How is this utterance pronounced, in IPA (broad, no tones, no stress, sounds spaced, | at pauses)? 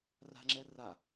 r a̤ ŋ͡ǁ ɛ r a